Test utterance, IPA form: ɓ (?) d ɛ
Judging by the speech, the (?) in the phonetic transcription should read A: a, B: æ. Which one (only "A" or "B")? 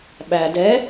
B